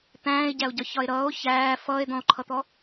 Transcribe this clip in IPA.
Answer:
t̪æ̃ːe̯ɟæo̯ɟɒçɒe̯ ɾʌːo̯ çæː fʌːe̯d̪ɔ̃o̯ǃʰʌt̪ɔ

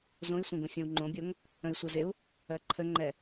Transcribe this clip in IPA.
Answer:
zõi̯sʷẽɡõ fʲõwŋ͡ǃõbʲoŋ | ə̃i̯sʷɜzɪu̯ | ɜǃʰəŋ͡ǃɛ

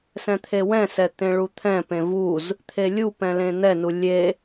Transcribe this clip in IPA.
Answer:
sɛ̃t̪ʰewɛ̃sɛ t̪ẽɭut̪ʰɛ̃pẽ vuz | t̪ʰelʲupɛ̃ lẽn̪ɛnu lʲe

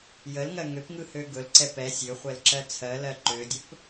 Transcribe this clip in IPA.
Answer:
jəlŋɜ ŋøpŋɯhø ɡɵlǀɛ pɛsʲ øχʷɛlǁɜ t͡sʰɜlɜ ǃødʲɵp

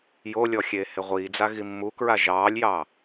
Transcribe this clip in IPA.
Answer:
jolʲɔxʲeːhe ʁʷiːd͡zaɣi mːukɹa ʒɑːlʲjɑː

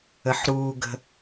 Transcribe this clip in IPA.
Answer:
əħɾuːɡə̤

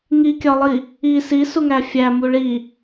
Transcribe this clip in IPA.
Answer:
ŋikʲɒlˠi | i sisuŋæ fʲæmu ɭi

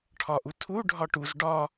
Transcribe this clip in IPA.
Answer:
ʈʰɒʔutʰu ɖʱɒʈuz ɖɒ

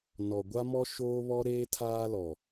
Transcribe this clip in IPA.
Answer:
nɔ˨ɡʷa˦mɔ˦ ʃoː˦βɔ˦ɾeː˦ tʰaː˦lɔ˨

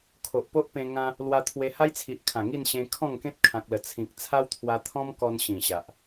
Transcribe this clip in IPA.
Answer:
kʰo˨ʔpo˦ʔpẽ˧ ŋã˦ | lwa˧t̪ʰwe˧ ha˦jt͡sʰi˨ʔkʰã˨˩ ŋi˥˧nɕẽ˧ kʰɔ̃˥˧ŋkẽ˦t̚ kʰã˨k̚lə˨˩ t͡sʰĩ˨k̚ t͡sʰa˦wt̪ʰwa˧t̪ʰɔ̃˦mkɔ˧n ɕĩ˨˩ɕa˨ʔ

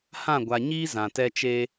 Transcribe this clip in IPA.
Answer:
hã˦˨ɡʷa˨ɲiː˦ zã˨tɛ˦t͡ʃeː˦

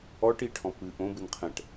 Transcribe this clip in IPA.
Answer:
ɔʈiʈʰɔ̃ pɨ ʔõbɨn qʰɛ̃ʈ

